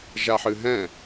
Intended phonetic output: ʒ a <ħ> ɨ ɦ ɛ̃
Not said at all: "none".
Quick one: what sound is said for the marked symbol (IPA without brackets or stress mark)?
ħ